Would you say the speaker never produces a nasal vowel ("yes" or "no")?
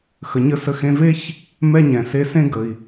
no